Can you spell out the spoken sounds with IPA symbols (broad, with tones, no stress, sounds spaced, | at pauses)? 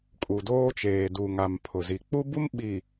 kʼ u˨ d oː˦ t͡ʃ eː˨ d u˨ ŋ a˨ m pʰ ʊ˨ z i˨ k͡p u˦ b u˦ m ɓ i˨